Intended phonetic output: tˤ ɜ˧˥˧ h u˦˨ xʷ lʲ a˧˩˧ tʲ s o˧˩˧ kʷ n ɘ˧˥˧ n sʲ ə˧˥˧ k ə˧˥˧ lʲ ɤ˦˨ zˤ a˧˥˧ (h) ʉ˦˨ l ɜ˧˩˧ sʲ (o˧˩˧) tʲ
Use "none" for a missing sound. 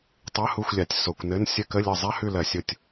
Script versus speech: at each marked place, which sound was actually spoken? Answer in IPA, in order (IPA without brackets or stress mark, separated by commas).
h, o˦˨